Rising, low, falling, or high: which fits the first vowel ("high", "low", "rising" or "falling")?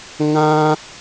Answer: high